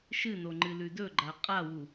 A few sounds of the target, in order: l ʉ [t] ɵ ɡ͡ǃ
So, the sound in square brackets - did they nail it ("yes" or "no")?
no